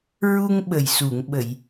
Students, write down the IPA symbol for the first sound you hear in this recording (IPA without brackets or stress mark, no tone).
ɹ